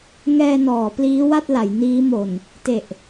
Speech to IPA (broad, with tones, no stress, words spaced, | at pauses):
ŋɛː˧nɔː˩˦ pliː˦˥wa˥˩t̚la˩˦j niː˦˥mo˨˩n | te˨˩ʔ